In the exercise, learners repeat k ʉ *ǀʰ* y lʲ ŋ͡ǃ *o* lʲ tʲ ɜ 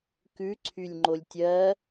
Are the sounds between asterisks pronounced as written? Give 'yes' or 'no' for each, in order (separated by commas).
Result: yes, yes